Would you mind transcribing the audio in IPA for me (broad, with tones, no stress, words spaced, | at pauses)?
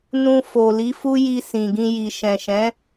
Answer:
nũ˧fo˨ li˨˦fu˦ji˧ sĩ˨ ɡĩ˧ ji˨ ʃɛ̃˨ʃɛ̃˨˦